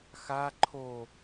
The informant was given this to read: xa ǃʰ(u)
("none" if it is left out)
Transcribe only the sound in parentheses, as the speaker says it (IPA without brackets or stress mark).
o